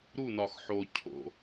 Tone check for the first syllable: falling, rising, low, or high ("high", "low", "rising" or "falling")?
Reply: falling